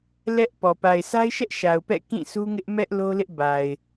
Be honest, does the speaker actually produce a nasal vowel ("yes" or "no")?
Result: yes